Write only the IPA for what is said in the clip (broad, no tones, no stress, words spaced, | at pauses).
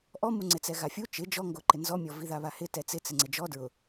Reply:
ʔɔmu ŋ͡ǀɪt͡sɛɣafʲu t͡ʃɪ d͡ʒɔŋɡoǃɪ nzɔmʲɔviða βahɪ tɛt͡sɪ t͡sɪŋ͡ǀɪd͡ʒɔ dɹʊ